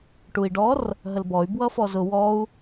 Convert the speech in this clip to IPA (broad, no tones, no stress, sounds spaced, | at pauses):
ʈ u i̯ ɖ ɔ r | ɦ ə l b ɔ y̯ b w ʌ f ɔ z ʊ w ɔ u̯